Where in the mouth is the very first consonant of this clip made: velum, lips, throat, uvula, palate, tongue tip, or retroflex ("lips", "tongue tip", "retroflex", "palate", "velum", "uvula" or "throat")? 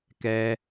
velum